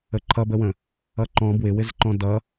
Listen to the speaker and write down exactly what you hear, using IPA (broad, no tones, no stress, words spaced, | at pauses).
əǃʰʌbəwə̃ | ʌǃɔ̃ bwɪwɪzǃɔ̃ dʌ